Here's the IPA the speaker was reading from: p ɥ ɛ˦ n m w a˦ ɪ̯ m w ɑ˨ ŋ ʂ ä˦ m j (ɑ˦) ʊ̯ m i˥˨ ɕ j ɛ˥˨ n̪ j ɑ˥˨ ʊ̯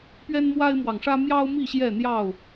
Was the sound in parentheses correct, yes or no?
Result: yes